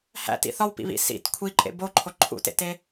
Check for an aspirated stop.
present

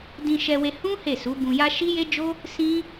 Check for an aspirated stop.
absent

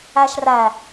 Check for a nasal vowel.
absent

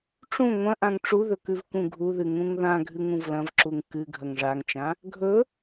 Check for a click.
present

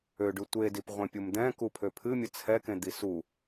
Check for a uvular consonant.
present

